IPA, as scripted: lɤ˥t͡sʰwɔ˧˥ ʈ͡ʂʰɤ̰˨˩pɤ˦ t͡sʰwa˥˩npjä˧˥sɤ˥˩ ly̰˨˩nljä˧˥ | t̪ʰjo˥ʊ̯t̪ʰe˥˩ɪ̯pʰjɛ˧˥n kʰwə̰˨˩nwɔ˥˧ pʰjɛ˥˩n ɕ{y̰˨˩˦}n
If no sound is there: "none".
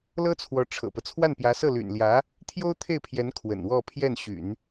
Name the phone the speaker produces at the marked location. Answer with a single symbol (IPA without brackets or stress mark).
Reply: y̰˨˩˦